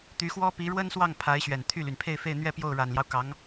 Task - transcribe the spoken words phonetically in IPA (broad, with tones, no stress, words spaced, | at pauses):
t̪y˧˥xwɔ˥ pi˧˥ɻwə˥nswɑ˥˩ŋ pʰa˧˥ɪ̯ɕɥɛ˨˩n t̪ʰy˥˩ly˩n pʰe˥˧ɪ̯fe˥˧ɪ̯n̪ɥɛ˥˧ pjo˥˩ʊ̯ɻa˨˩nljɑ˦ʊ̯ kɑ˧˥ŋ